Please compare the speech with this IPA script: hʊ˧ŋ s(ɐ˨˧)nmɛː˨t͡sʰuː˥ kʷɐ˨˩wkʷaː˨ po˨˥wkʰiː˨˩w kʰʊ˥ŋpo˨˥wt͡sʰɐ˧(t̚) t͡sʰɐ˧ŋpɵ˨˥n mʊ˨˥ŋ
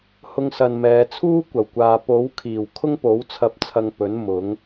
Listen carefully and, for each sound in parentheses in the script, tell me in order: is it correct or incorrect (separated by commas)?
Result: incorrect, incorrect